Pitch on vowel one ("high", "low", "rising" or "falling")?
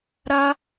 high